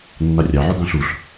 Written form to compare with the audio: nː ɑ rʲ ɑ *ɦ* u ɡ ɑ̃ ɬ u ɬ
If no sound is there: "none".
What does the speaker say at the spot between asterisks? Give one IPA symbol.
ʕ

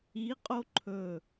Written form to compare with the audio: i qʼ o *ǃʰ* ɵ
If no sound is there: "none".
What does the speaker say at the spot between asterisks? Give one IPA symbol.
ǃʰ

